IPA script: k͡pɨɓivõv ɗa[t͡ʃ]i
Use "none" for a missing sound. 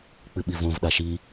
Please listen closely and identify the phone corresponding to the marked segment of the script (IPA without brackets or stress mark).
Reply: ʃ